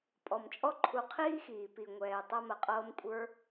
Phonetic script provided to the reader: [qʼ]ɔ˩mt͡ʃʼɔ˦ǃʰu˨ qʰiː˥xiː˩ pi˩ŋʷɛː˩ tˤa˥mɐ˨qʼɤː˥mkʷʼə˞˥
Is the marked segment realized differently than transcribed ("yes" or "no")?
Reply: yes